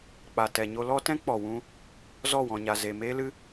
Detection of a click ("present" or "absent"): absent